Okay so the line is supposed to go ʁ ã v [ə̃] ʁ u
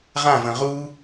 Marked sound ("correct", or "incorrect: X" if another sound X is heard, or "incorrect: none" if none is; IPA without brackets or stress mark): correct